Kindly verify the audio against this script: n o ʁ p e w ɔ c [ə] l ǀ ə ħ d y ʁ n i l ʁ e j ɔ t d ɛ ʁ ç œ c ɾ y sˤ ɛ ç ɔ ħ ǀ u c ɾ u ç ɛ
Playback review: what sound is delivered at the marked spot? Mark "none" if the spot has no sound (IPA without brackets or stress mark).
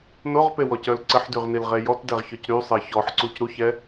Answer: œ